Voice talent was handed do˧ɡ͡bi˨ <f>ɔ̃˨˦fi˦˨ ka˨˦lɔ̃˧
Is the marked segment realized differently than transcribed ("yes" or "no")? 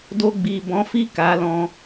yes